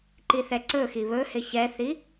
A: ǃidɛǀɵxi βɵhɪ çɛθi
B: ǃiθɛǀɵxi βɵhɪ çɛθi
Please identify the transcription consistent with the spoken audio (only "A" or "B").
B